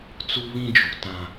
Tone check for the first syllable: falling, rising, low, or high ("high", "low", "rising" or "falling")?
high